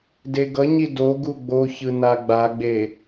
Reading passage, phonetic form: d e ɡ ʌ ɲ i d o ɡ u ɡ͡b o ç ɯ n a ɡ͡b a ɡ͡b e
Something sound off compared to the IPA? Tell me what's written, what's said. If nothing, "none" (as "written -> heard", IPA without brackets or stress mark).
none